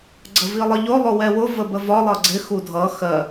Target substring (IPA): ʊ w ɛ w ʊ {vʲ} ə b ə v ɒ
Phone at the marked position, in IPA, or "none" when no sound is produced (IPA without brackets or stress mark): v